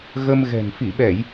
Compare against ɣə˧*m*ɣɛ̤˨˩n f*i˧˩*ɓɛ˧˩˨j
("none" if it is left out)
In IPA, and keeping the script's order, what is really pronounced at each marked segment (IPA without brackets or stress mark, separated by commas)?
m, i˧˩